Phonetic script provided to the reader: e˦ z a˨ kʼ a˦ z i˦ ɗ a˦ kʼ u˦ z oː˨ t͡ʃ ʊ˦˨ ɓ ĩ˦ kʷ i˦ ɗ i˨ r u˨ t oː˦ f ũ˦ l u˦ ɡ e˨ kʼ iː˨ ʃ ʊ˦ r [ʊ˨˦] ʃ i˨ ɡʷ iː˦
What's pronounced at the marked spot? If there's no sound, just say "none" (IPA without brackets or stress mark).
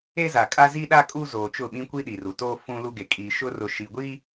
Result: ʊ˨